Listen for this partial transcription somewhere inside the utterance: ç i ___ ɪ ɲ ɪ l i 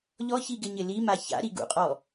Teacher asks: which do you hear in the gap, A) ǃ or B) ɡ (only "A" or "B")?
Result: B